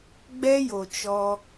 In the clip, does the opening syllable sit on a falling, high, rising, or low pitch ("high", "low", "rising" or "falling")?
high